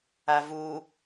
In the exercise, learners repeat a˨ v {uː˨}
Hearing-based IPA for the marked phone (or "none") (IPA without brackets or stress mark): uː˨